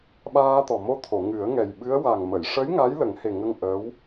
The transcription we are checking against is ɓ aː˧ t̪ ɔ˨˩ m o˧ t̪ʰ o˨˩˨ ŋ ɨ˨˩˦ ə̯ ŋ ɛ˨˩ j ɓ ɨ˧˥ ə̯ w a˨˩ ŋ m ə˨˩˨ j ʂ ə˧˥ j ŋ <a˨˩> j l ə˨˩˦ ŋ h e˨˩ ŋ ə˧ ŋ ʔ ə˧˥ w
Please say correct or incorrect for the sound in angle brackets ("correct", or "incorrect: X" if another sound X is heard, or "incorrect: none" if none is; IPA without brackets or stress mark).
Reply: incorrect: a˧˥